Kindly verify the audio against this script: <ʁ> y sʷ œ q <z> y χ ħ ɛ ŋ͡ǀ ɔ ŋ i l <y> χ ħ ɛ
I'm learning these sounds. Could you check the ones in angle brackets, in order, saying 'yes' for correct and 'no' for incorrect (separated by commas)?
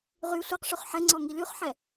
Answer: yes, no, yes